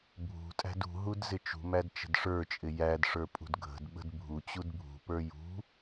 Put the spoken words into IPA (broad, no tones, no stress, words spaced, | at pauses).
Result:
bʱṳtʼæ̤d ṳɦud zɪt͡ʃṳmæd t͡ʃə̤dʂə˞t͡ʃʼɪ jædʂə˞ pʼṳdɡʱə̤dɓə̤d bʱut͡ɕud bʱṳpə˞ jṳ